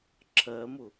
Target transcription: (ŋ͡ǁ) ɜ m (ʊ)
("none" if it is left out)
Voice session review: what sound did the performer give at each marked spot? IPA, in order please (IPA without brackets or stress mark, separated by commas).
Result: ǁʰ, ʊ